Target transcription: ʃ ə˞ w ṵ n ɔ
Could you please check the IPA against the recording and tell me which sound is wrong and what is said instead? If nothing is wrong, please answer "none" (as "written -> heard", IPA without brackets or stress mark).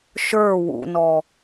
none